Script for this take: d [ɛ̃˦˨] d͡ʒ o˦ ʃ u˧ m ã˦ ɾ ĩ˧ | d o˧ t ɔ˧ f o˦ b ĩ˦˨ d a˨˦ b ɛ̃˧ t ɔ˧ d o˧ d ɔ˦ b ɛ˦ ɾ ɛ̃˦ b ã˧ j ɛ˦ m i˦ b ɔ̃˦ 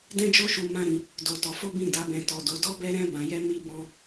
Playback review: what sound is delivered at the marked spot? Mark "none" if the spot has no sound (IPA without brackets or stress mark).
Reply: ɛ̃˦